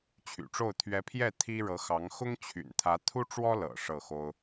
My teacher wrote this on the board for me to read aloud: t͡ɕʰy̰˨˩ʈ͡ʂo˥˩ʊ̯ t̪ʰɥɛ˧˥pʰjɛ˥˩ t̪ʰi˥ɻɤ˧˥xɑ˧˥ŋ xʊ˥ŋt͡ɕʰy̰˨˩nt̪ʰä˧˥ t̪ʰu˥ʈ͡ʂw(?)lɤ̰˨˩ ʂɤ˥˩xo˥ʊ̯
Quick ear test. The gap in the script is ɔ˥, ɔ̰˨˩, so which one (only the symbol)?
ɔ˥